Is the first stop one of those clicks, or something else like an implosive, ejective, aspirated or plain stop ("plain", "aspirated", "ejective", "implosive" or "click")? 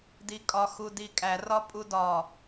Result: plain